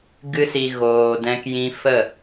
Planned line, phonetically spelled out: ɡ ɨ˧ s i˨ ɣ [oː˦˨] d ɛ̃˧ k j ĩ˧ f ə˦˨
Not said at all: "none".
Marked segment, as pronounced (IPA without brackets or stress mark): oː˨